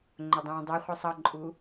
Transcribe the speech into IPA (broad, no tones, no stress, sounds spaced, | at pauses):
ŋ͡ǃ ʊ dˤ ũː dˤ ɛ χʷ i sˤ ʌ ǃʼ u